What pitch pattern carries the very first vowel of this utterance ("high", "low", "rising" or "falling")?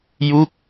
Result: falling